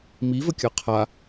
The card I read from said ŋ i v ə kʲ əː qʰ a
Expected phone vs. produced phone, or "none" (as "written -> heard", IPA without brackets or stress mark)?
ŋ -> m